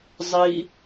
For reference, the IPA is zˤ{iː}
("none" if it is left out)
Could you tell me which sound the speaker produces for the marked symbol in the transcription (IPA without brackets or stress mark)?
i